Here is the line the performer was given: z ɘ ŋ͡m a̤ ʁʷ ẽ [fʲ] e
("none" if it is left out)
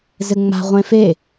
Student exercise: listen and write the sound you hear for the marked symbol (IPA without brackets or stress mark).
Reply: f